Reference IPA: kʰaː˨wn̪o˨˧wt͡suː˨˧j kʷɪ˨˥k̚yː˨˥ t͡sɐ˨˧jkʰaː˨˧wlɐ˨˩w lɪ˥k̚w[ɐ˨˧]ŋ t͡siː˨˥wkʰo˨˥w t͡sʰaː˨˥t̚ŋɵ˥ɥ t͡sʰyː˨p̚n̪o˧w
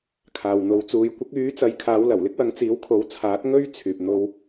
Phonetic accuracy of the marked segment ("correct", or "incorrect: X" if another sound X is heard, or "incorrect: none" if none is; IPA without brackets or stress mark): incorrect: ɐ˨˥